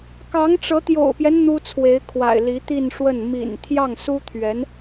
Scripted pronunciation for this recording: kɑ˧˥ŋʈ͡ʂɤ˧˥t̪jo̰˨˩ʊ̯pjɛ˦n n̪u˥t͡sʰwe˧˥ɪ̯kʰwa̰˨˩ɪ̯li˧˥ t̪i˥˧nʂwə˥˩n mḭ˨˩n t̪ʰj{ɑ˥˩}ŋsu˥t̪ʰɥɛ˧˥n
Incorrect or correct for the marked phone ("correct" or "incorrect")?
correct